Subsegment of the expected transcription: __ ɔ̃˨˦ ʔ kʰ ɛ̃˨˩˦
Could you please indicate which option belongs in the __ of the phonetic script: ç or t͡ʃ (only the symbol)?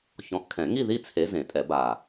ç